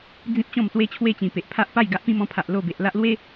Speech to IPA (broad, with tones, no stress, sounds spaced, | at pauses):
d͡z ĩ˦ p̚ t͡ɕ ɔ̃˥˧ m s w e˦ t͡ɕʰ w e˦ t͡ɕ ĩ˨˩ p e˨ ʔ pʰ a˦ ʔ p a˥˧ j ɡ a˦ ʔ p ĩ˦ m ɔ̃˧ pʰ a˨ ʔ l o˥˧ b e˨ ʔ l a˦ ʔ l w e˦